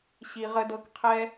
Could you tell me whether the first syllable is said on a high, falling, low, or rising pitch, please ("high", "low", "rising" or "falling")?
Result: low